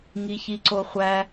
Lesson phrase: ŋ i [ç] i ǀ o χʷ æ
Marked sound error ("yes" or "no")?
no